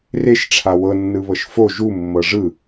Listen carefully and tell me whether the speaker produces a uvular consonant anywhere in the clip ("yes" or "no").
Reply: no